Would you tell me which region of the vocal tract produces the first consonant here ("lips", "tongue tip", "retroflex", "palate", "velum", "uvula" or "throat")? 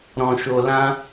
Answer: tongue tip